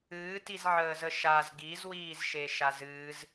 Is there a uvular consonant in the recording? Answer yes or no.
no